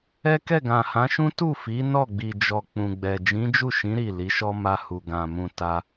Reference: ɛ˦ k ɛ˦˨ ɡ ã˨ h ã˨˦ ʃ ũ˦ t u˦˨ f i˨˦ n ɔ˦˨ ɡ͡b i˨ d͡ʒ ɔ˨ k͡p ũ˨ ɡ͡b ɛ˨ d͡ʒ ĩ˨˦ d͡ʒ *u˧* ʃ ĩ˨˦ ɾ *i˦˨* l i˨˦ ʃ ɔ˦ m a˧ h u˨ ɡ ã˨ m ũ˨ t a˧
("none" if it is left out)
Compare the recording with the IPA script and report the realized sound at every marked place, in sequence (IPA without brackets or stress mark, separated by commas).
u˦˨, i˦˨